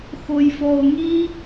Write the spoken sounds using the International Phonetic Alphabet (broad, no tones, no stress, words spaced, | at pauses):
xojfɔo̯ŋi